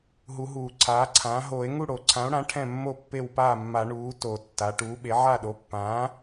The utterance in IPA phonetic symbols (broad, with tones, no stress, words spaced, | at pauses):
ɦu˨˩˦ɦuː˨˩˦ǀʰaː˩˥ǀʰãː˩˥ ɦoː˨˩˦e̯ŋu˥˩ ɽo˨˩˦ǀʰã˩˥o̯ɽã˩˥ ʈʰɛ̃˥˩mːo˥˩ pːe˥˩wpaː˥˩mːa˨˩˦ ɳuː˩˥ to˨˩˦tːa˩˥ ʈuː˩˥ɓe˩˥ʕa˥˩ ɗo˩˥pːãː˩˥